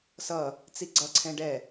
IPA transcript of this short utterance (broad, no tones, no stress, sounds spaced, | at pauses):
s ʌ | t͡s i ɡ͡ǀ ʌ ǀʰ ɛ̃ ɖ ɛ